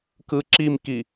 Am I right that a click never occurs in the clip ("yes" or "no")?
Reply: no